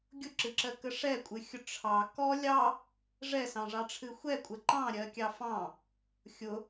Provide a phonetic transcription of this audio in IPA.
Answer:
ɡʲʊǁɨǁɜkə ʂɛkʷʼɨxʲʊ ʈ͡ʂʰɑ kɔ lʲɑ | ʐɛsɑ̃ʐɑʈ͡ʂʰɨ xʷɛkʷʼə ǃɑ̃ɾʲɜkʲɑ fɑ̃ | xʲʊ

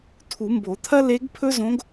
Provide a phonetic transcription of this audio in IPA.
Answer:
tʰu˨˩˦mbo˨˩˦t̪ʰɐ˥ le˧˥ɡ pʰɵ˥zõ˧˥ɡ

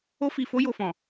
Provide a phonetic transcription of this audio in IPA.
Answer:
o˧fi˨fo˧ jo˨fɔ̃˨

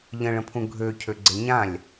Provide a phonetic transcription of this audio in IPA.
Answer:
ʎə̃ɭə̃pʰũ ɡʱøcʰøɡ͡ǀe ɲãlʲ

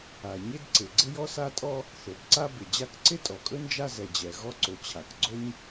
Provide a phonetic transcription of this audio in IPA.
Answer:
a˩ɲɪ˥d ǀɪ˩ ɡ͡ǀɪ˥jɔ˥sa˥tʼɔ˥ | θo˩bǀa˥ bɪ˩d͡ʑa˥k ǀɪ˥tʼɔ˩kʼɵ˥ nd͡ʒa˥zɛ˩d͡ʑɛ˩ ɣɔ˥ǀo˩ t͡ɕʰa˩kɡ͡ǀo˥ɲ

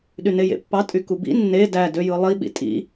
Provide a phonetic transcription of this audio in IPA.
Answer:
ɗynejḛpːɑ tʼykubḭ nːe dæ døjɯlˠi ɓḭtʼḭ

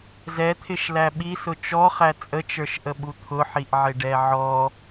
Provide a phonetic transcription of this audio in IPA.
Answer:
zɛt̪ʰɪʃlæ ɓisʊ t͡ʃɔχæ t͡sʼət͡ʃə˞ʃʔəɓu t̪ʰʊħiʔʕɪɖɛ ʕɔ

